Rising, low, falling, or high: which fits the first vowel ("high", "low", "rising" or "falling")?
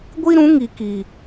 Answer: high